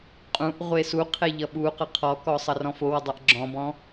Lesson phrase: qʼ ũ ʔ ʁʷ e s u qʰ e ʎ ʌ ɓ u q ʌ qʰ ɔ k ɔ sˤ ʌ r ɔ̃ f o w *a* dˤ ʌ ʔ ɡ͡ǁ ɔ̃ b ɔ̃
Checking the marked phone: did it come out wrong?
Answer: yes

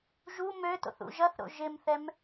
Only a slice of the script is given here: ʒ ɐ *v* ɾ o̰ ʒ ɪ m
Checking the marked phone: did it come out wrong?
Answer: yes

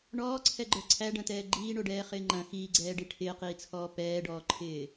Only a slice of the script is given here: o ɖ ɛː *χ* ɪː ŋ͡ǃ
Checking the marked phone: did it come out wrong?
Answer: no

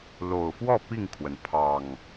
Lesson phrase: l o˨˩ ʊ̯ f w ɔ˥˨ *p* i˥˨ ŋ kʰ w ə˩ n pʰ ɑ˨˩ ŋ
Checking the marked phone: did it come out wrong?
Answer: no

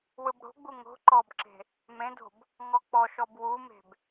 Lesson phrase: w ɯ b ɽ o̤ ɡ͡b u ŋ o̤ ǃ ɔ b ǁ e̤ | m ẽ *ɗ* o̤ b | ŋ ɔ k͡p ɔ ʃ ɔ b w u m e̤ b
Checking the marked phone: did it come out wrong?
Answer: yes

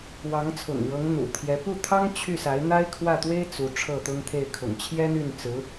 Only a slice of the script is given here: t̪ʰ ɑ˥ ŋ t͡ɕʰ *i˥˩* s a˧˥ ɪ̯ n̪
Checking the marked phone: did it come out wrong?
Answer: yes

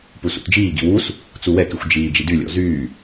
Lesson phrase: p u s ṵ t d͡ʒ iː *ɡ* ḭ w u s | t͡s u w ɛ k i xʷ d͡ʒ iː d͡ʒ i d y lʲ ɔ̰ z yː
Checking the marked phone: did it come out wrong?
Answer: no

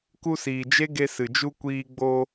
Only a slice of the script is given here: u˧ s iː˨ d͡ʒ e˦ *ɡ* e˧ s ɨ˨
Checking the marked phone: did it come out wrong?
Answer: no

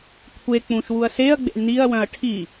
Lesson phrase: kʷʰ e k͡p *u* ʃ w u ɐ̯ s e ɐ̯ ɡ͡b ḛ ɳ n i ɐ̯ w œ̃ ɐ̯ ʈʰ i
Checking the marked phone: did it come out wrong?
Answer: yes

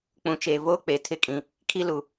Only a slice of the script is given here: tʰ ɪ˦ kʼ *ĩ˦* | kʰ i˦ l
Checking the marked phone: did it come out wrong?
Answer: yes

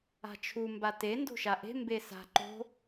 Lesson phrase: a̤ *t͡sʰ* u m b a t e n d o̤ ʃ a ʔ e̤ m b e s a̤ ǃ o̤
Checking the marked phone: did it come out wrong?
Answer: yes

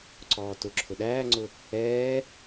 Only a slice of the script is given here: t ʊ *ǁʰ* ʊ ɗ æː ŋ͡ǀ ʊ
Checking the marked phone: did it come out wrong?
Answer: no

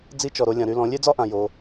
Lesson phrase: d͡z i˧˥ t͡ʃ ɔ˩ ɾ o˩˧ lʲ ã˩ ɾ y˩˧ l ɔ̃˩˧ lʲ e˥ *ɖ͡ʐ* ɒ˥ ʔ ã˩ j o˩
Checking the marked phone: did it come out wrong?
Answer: yes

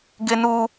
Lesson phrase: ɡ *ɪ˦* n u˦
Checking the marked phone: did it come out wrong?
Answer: no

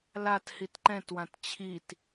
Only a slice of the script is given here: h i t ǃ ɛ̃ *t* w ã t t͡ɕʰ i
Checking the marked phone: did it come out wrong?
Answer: no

